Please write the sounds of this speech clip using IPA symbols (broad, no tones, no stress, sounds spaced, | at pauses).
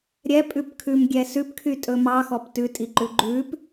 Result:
ɾʲ ɛ pʼ ʉ p kʰ ʉ m ɡʲ ɛ s ʉ p kʰ y tʼ ɵ m ɑ x ɔ p t ʉ tʼ i ǃ ʉ ɡ͡ǃ ʉ p